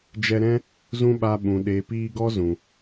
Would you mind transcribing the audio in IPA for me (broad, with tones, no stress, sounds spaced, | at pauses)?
d͡ʒ ɛ˧ ɾ ɛ̃˦ | z ũ˦ ɓ a˧ ɓ ũ˨ ɗ eː˨ p iː˧ ɡ ɔ˦ z ũ˨